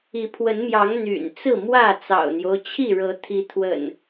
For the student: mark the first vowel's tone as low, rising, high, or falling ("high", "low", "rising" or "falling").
rising